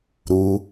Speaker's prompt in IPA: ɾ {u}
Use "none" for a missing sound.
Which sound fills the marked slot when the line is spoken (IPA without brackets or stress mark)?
u